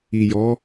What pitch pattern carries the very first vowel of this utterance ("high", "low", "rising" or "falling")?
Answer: low